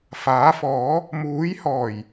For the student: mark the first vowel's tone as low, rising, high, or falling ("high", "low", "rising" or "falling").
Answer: rising